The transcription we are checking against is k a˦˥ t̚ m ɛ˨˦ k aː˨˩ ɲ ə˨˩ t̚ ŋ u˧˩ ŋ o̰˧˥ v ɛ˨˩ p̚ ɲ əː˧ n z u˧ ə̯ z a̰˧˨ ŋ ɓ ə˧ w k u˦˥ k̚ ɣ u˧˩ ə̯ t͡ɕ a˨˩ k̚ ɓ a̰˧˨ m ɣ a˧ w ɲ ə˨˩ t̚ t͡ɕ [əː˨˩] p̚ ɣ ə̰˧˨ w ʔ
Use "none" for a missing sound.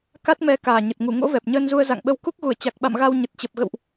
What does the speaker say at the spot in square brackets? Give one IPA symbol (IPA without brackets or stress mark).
ə˨˩